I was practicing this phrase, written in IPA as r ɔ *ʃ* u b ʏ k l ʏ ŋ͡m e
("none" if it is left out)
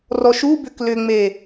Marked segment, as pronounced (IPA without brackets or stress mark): ʃ